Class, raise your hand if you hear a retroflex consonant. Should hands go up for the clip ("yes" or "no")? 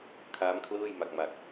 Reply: no